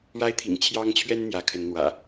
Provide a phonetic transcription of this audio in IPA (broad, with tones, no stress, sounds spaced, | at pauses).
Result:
ɻ a˦ ɪ̯ t̪ʰ ḭ˨˩ ŋ t͡ɕʰ j ɑ˦ ŋ t͡ɕʰ ɥ ɛ˦ n n̪ j ä˨˦ kʰ ə˨˦ n n̪ w ä̰˨˩